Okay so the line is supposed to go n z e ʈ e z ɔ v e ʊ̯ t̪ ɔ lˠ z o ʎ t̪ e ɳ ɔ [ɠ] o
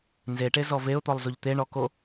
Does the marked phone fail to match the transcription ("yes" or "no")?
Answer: yes